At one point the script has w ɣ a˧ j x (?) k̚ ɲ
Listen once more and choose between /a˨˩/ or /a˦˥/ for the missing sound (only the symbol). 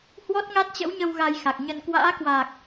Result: a˨˩